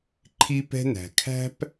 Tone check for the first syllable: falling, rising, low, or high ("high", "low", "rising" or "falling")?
high